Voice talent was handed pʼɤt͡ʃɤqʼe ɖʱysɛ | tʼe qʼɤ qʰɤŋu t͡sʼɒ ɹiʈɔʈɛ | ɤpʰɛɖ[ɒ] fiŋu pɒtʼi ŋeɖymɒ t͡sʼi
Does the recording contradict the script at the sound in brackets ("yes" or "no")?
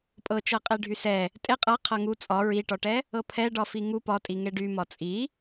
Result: no